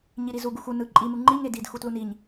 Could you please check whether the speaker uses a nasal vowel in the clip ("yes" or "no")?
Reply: no